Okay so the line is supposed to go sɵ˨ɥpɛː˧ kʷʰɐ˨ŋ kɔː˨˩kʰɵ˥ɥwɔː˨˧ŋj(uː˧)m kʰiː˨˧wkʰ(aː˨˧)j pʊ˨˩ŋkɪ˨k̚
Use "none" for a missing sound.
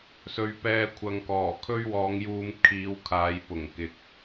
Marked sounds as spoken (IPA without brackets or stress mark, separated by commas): uː˧, aː˨˧